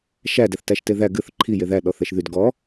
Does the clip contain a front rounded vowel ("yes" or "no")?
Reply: yes